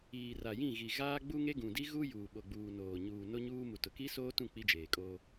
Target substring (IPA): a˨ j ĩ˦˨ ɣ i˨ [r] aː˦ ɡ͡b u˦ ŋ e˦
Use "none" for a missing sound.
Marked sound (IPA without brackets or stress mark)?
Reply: ɣ